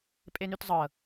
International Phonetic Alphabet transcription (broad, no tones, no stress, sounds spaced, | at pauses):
pʼ e n y t zˤ ɤ